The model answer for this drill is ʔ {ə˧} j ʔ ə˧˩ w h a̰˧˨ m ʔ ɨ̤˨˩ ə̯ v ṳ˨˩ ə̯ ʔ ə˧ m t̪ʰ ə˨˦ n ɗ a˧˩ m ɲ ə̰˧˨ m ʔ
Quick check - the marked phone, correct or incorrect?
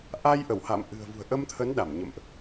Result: incorrect